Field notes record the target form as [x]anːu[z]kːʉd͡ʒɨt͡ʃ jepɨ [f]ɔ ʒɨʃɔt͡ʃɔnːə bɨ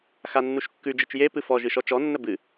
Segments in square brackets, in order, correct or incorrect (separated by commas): correct, incorrect, correct